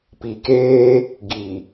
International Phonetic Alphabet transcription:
p i˨ k eː˦ | ɡ i˨

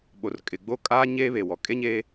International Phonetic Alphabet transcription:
ɓ o˨ r kʼ ɪ˨ ɡ͡b o˦ kʼ aː˦ ɲ eː˦ β e˨ w ɔ˨ kʼ e˦ ɲ eː˦

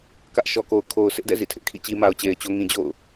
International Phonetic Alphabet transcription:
k ä˦ ʔ ʃ ɔ˨ k o˨ ʊ̯ kʰ o˨ ʊ̯ s ɪ˦ ʔ d ɛ̰˦˨ z ḭ˦˨ tʰ ɪ˦ ʔ kʰ ḭ˦˨ t͡ɕ i˦ m a˨ ʊ̯ t͡ɕ e˨ ɪ̯ t͡ɕ o˦ ŋ ĩ˨ d͡ʑ o̰˦˨ ʊ̯

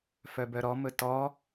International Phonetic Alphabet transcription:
f œ b œ ɾ ɔ m ɵ t ɔ

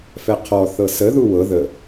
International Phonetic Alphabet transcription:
f ɛ qʰ ɔ θ ɤ s ə ð u w ɤ ð ə

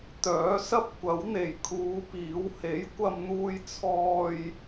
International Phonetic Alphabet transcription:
t̪ œː˨˥ s ɐ˥ p̚ kʷ ɐ˨˥ w n̪ e˨˩ j kʰ uː˨˧ p iː˨˥ w h e˨˥ j kʷ ɐ˧ m n̪ uː˧ j t͡sʰ ɔː˧ j

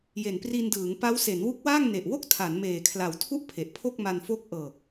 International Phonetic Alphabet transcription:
j e˨˩ n p r i˧ n d ɯː˩˦ ŋ p a˦˥ w s e˩˦ n w u˦˥ k̚ w aː˥˩ ŋ n e˨˩ ʔ w o˥˩ k̚ tʰ a˩˦ n m eː˨˩ kʰ l a˨˩ w tʰ u˥˩ ʔ pʰ e˨˩ ʔ pʰ o˥˩ k̚ m a˧ n f o˦˥ k̚ ʔ ɤː˨˩ k̚

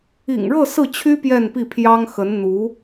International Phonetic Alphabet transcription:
ḭ˨˩ ŋ ɻ ɤ˥˧ s ɹ̩˥˩ t͡ɕʰ y˥ p j ɛ˥˧ n p i˥˩ pʰ j ɑ˥ ŋ x ə˧˥ n n̪ u˧˥

